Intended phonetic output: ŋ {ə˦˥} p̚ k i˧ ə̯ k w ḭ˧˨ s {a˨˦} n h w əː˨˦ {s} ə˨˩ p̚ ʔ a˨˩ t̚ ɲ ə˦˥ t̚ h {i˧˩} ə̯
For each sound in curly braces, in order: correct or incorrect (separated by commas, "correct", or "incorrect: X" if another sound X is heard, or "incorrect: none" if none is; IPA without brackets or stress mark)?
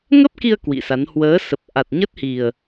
correct, correct, correct, incorrect: i˨˩